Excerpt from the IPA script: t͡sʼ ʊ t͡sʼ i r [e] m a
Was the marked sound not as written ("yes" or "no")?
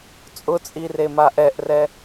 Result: no